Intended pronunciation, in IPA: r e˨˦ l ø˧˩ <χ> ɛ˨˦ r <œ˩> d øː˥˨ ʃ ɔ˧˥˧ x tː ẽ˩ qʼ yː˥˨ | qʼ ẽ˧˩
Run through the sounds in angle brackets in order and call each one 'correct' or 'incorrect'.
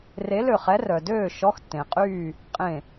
correct, correct

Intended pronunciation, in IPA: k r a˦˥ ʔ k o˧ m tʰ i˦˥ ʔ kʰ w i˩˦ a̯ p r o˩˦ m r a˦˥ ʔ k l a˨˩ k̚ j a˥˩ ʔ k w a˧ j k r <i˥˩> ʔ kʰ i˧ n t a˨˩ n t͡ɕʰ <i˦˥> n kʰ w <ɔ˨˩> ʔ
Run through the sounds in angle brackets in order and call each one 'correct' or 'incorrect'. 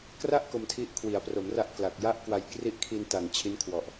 correct, correct, correct

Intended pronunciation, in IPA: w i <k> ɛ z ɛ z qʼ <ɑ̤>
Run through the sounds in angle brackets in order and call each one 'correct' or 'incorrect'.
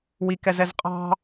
correct, correct

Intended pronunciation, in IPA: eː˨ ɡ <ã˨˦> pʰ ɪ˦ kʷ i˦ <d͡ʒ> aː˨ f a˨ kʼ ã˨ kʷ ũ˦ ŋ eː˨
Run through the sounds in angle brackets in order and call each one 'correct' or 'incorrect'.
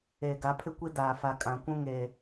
incorrect: a˨˦, incorrect: d

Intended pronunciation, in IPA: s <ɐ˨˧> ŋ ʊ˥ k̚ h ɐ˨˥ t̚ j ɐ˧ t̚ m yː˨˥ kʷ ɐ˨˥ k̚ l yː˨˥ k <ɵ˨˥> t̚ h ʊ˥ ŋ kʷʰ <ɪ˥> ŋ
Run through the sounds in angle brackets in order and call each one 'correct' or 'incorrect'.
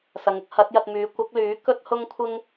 correct, incorrect: ɵ˥, correct

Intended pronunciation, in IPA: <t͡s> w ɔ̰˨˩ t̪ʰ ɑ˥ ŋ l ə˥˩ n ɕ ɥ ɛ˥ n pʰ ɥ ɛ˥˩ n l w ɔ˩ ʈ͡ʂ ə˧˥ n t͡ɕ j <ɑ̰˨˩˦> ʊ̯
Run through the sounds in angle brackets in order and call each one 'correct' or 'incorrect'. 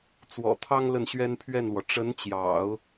correct, correct

